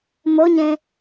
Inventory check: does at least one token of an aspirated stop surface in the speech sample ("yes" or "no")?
no